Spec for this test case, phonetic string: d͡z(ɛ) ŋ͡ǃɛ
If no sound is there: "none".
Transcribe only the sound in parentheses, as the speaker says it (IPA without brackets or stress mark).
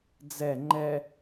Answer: ɛ